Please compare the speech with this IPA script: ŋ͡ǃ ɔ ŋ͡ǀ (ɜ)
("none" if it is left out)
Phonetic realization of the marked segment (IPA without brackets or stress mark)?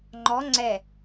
ɛ